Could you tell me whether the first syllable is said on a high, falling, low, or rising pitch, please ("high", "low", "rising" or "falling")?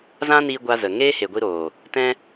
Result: high